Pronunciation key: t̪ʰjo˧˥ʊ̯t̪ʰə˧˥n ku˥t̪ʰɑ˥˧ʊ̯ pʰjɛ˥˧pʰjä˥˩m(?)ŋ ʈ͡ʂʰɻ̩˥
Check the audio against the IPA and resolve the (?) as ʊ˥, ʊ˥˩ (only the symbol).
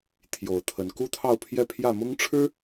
ʊ˥